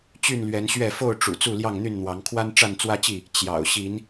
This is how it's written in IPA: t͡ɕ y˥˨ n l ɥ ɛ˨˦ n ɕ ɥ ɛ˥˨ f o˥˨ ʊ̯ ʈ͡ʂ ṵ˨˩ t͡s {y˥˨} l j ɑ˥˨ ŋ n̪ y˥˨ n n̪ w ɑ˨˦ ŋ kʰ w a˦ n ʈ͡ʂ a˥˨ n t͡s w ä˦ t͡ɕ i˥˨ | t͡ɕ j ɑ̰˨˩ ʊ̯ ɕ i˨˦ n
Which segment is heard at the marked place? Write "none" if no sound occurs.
u˥˨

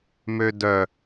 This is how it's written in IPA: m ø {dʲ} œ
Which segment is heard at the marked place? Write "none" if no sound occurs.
d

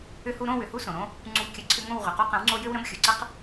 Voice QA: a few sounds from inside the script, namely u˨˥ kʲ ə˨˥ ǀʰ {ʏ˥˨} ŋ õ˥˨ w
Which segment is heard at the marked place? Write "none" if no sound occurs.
ʏ˦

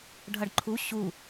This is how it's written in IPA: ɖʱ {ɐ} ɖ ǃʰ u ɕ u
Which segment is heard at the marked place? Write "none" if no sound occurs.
ɐ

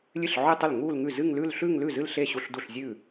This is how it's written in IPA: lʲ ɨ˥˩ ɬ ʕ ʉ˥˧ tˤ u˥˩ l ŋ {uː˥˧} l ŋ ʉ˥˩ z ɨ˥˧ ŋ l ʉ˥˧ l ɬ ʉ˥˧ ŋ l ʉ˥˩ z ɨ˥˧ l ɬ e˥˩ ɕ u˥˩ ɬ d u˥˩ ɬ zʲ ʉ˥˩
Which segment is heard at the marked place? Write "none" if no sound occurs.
uː˥˧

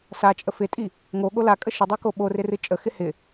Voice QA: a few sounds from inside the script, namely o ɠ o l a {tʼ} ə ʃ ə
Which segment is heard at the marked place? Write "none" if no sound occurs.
kʼ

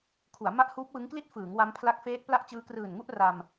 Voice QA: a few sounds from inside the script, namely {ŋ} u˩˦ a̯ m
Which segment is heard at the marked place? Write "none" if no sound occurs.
kʰ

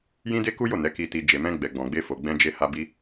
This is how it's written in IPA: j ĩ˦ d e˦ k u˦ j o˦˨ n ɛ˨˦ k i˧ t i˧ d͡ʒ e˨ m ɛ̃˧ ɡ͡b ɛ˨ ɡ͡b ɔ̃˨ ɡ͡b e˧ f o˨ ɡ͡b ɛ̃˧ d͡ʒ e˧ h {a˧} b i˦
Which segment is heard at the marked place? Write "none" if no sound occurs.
a˧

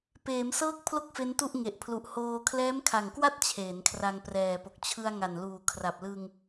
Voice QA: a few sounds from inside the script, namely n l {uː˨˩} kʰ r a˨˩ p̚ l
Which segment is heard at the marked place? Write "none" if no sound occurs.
uː˨˩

